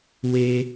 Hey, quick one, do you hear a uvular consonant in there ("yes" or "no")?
no